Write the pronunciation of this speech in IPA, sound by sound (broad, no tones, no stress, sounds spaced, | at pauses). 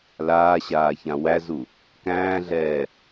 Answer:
l aː ɕ aː ç ã w æ z u | k æ̃ː ɮ ɛː